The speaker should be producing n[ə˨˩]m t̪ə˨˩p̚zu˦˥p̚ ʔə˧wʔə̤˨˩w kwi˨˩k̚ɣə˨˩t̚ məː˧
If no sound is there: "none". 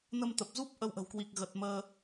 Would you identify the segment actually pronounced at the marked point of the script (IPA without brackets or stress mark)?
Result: ə˧